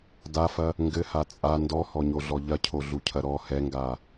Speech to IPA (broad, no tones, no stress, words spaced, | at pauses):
dafɐ | ŋɡɘha t͡sʼa ndɔhɔɲoɮɔ ʎɐcʰoɮucʰɐ ɾɔ hɛŋɡa